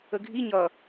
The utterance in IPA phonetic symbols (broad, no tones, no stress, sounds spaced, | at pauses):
ə ɡʱ i ɲ ʌ